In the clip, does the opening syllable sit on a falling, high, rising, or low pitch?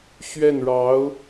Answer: falling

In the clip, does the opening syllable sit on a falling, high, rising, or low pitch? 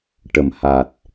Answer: low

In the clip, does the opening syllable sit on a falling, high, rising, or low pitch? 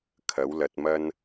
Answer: rising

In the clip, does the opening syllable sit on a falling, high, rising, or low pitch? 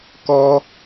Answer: high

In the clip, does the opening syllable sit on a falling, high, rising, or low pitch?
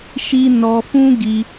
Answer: high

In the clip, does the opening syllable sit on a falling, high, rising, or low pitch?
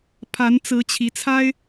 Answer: rising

